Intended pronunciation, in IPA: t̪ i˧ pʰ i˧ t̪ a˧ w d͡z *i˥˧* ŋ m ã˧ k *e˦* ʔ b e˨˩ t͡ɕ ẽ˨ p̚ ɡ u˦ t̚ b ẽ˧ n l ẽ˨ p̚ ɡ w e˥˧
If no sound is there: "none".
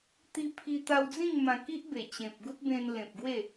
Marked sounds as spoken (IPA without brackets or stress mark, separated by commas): ĩ˥˧, i˦